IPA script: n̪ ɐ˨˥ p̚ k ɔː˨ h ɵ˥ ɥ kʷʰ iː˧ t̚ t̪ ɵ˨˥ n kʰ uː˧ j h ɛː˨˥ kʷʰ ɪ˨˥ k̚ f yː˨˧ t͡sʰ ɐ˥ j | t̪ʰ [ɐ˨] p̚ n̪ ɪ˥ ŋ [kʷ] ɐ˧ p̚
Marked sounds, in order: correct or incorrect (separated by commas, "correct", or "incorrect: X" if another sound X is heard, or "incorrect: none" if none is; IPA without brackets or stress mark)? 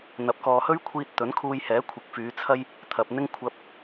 correct, incorrect: kʷʰ